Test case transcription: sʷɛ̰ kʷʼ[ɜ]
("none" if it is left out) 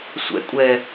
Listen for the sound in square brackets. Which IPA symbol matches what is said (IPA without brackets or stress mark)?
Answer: ɛ